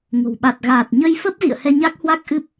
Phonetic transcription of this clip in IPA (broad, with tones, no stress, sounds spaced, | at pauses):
ŋ o̤˨˩ w ɓ a˨˩ t̚ ɣ aː˨˩ t̚ ɲ ə˧ j f ə˦˥ p̚ z ḭ˧˨ ə̯ h ɛ˧ ɲ a˦˥ k̚ h w a˦˥ k̚ ʔ ɨ˦˥ p̚